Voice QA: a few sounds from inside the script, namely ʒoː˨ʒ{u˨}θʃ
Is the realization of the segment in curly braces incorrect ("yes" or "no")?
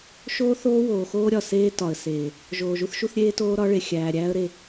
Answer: yes